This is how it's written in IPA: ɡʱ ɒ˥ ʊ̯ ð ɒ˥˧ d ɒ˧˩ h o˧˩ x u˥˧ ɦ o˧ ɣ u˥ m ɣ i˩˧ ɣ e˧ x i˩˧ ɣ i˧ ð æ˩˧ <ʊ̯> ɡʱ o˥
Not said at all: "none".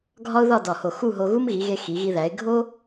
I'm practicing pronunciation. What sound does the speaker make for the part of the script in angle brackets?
ɪ̯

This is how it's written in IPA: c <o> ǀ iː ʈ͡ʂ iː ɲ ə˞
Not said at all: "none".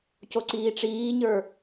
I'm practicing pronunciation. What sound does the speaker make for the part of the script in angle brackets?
o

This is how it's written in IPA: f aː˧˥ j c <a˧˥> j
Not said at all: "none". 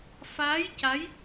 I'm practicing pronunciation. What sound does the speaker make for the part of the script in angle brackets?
a˧˥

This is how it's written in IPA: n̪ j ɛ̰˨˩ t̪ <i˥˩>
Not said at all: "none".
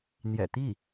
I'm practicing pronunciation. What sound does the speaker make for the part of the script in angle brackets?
i˥˩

